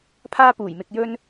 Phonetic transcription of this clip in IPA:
pʰaː˥puː˨˩jmɪ˧k̚jɵ˥n

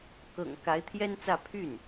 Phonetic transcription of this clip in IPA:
kɤ̰˨˩ŋ ka˧˥ɪ̯t̪ʰjɛ˥nt͡sä˥˧ pʰy˥˩n

